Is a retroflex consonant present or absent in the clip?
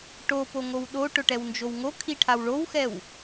present